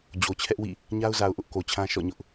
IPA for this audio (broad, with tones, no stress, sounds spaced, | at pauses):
d͡ʑ o˨ t͡ɕʰ ɛ˦ ʔ w ḭ˦˨ | ɲ a˦ ʊ̯ z a˨ ʊ̯ ʔ ʊ˦ ʔ k o˨ t͡ɕʰ ã˦ ʃ ɔ̰˦˨ ɲ ʊ˦ ʔ